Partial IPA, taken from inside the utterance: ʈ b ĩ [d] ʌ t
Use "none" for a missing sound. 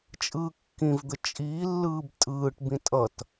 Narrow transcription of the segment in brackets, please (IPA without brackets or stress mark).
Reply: tʼ